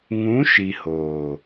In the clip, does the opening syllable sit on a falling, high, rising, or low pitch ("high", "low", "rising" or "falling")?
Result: rising